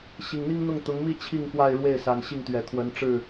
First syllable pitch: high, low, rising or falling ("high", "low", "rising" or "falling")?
low